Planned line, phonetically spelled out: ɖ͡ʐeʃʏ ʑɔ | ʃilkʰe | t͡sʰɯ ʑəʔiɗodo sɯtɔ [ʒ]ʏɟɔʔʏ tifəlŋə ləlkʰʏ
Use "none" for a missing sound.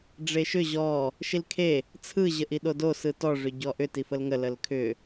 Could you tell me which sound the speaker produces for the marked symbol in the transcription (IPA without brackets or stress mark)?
ʐ